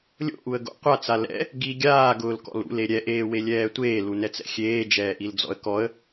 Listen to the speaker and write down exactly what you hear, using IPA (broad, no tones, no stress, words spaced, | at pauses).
lʲo̰ʔuə̯ɡo̰ qʷat͡sa lɛ̰ | ɡi ɡʲaːɡʊːlkɔ̰l ṵle ɾʲɛʔeːwelʲɛː tʷeːlunɛt͡sɛ̰ xʲeːd͡ʒɛːʔild͡zɔ̰ə̯ kɔə̯